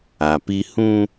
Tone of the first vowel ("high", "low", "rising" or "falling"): low